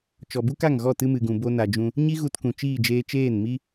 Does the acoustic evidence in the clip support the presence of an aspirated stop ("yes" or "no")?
no